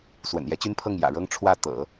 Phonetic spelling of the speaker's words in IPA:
s w ə̰˨˩ n j ɛ˧˥ t͡ɕ y˥ n pʰ ɤ˥˩ ŋ j ä̰˨˩ ɻ ɤ˥ ŋ ʈ͡ʂʰ w ä˥˩ t̪ ɤ̰˨˩˦

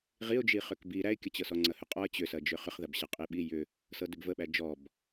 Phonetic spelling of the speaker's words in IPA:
ʁ i ʊ̯ d͡ʒ i χ ʏ k b i ɾ æ ɪ̯ kʲ ɐ t͡ɕ ɤ s ɔ ŋ͡ǀ ɐ h ʏ qʼ ɔ ə̯ t͡ɕ ʏ s ɐ d͡ʒ ʏ χ ʏ χ ð ɐ b ɕ ɐ qʼ i ɓ i j ʏ | s ɤ d ʏ b v ə ɓ æ d͡ʒ ɔ b

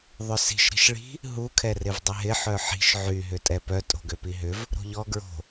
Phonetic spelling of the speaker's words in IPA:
ðˤ ʏ s i̤ ʃ ɾ i̤ ʃ ɭ i̤ | ɦ u kʰ ɛ r ɪ v dˤ ɪ ɦ ɪ ħ œ ħ i̤ ʃ ʕ y ɦ ʏ tʼ ɛ p œ tʼ o̤ ɡ ø p i ɦ ʏ v | ɾ o̤ ʎ ɔ ɡ ɹ o̤

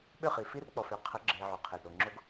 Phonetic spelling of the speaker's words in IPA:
ɓ ʏ˦˨ χ i˨ f i˦ r k͡p ɔ˨ f ʏ˨˦ qʰ ə˨˦ ɡ͡ǁ e˨ ʕ o˨ qʰ e˨ d ɾ o˨ ŋ͡ǁ o˦ ɡ

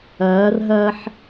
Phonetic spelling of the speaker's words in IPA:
ɐː r ɦ ɐː ħ

